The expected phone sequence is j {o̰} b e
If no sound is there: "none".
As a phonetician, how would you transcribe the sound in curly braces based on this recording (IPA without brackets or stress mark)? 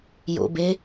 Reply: o̰